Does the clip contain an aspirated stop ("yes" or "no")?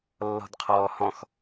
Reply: yes